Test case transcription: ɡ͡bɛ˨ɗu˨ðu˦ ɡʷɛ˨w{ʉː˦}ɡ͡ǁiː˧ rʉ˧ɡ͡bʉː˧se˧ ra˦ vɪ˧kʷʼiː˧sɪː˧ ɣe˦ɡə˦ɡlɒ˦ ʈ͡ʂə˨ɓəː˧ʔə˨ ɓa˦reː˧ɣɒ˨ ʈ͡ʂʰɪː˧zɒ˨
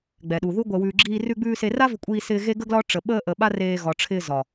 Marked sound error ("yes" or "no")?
yes